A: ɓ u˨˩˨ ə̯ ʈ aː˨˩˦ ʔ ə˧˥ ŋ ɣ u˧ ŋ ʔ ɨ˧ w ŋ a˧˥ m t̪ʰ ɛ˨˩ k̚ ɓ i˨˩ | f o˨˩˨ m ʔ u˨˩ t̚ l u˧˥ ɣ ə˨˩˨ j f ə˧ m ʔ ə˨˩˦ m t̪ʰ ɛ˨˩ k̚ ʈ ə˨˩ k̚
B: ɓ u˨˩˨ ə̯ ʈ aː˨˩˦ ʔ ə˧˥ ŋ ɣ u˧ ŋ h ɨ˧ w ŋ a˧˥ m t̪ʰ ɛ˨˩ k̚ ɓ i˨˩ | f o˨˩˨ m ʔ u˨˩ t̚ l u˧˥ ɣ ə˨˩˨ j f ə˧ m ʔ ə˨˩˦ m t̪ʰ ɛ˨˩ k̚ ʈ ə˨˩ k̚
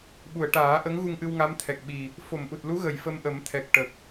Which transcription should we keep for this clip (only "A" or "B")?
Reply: A